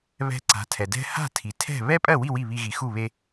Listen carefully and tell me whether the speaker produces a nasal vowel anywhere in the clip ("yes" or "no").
no